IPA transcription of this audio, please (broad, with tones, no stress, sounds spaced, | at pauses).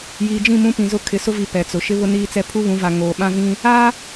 j iː˨ d͡ʒ ĩ˦˨ m ũ˦ p ĩ˨ z ʊ˦ kʰ ɪ˨˦ s ʊ˦ v i˨ p ɛ˨ t͡s ʊ˨ ʃ ɪ˦ β ʊ˦ n iː˦ t͡s ɛ˦ pʰ u˦ β ũ˨˦ v a˨ ŋ oː˨ ɓ ã˦ v ĩ˦ | a˦